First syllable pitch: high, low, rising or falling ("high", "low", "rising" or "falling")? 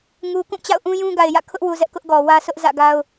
low